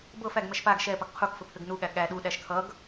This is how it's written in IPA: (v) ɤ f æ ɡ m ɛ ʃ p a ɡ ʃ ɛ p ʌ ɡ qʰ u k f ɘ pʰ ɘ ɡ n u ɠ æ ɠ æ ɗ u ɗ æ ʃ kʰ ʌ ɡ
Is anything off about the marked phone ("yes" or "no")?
yes